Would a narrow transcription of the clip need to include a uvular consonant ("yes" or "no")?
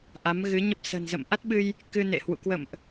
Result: no